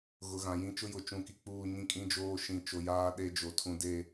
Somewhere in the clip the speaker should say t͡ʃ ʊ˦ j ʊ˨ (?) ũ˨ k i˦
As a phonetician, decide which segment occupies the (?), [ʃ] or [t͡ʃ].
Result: t͡ʃ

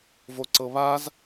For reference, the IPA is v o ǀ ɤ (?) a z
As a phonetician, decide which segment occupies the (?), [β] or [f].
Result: β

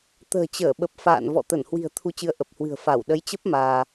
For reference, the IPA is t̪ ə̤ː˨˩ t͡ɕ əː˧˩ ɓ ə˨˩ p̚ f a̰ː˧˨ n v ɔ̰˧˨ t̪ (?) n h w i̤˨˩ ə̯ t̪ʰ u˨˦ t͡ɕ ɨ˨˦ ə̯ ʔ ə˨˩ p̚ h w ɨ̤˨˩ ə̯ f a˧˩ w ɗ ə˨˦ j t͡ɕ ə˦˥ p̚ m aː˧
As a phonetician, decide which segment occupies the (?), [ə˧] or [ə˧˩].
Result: ə˧˩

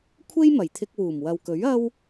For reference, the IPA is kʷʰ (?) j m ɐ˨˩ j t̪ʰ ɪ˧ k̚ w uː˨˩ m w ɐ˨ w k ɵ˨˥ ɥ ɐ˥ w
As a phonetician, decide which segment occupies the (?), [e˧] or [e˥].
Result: e˥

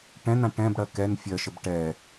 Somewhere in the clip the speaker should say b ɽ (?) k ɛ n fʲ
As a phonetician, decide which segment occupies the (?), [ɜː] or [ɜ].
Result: ɜ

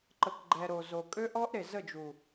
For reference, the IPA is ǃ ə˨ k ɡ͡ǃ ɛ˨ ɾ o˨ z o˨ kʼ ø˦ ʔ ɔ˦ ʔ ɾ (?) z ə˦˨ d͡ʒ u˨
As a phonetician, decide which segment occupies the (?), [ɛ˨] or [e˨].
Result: e˨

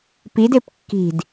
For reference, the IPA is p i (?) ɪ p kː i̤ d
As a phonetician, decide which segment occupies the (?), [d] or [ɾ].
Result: d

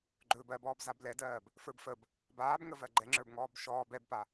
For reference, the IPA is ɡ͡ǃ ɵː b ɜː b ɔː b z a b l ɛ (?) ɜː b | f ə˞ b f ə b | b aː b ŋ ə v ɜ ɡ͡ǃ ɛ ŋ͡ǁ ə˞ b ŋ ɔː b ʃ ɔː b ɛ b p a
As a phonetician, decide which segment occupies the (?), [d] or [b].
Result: d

